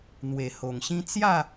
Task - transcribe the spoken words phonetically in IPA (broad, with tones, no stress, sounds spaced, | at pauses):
n̪ w e˨˩ h o˨˩ ŋ ɕ ĩ˦ t͡s j a˥˧